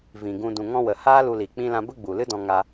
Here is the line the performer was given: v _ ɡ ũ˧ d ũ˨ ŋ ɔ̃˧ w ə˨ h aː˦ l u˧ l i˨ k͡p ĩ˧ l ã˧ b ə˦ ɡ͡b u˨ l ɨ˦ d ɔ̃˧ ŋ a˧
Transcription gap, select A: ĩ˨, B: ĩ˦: A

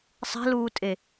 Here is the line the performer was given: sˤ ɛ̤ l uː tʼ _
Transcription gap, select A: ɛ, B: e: B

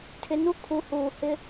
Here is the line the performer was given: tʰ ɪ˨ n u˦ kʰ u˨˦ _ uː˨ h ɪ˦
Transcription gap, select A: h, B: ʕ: A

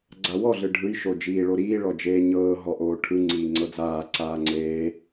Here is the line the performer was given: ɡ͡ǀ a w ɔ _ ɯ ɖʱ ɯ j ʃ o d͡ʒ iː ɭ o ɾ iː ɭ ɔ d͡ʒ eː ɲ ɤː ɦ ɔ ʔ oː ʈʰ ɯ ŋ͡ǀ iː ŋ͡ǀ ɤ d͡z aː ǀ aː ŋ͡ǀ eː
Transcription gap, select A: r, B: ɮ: B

